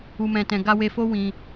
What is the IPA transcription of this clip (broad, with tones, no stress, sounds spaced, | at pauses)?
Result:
u˨ m ɛ̃˨ t ɛ̃˨ ɡ a˧ w e˧ f o˦ w ĩ˧